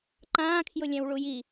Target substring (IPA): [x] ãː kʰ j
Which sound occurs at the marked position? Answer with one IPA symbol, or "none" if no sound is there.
ǃ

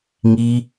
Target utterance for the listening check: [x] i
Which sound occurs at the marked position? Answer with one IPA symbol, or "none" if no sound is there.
ŋ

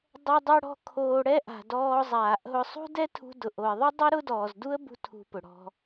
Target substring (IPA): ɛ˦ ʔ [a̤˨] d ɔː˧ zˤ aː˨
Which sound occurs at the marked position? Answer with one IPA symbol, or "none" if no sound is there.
a̤˨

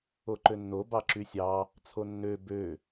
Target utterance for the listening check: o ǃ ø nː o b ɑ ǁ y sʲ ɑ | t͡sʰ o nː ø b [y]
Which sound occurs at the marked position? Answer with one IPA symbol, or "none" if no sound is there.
ø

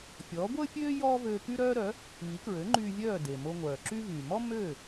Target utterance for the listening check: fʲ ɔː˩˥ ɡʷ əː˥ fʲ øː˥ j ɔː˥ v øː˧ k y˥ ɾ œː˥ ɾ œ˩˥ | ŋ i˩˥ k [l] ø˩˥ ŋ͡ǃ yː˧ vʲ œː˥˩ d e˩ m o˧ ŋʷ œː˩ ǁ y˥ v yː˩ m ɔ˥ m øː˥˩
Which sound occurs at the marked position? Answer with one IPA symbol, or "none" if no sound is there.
ɹ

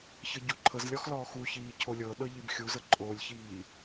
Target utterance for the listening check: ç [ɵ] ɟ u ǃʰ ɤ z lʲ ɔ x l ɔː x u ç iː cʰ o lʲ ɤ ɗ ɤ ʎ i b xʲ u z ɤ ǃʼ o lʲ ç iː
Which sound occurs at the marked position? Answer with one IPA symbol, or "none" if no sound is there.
ɤ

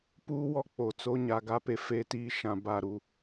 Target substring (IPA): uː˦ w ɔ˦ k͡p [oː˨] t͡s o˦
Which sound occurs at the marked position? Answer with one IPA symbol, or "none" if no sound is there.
o˨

